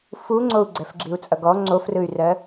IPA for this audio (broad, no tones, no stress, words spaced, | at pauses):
fuŋ͡ǀou̯ ɡ͡ǀɛfɡ͡ǁiu̯t͡sʼʌɡɔ ŋ͡ǀofrɯy̯rɜ